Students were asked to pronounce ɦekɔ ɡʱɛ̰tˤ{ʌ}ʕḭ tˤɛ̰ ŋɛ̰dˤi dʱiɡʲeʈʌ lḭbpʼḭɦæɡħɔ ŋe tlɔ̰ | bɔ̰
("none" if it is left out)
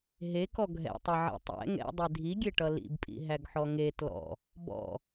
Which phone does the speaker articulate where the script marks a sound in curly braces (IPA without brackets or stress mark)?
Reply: ʌ